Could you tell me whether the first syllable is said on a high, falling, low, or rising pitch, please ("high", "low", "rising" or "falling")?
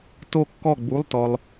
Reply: falling